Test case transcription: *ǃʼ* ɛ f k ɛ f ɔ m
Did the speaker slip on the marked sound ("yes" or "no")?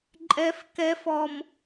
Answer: no